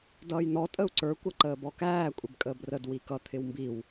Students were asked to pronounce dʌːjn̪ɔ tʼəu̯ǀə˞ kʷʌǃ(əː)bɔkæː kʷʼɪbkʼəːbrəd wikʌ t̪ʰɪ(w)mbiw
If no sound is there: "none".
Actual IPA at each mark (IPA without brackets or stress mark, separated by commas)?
əː, w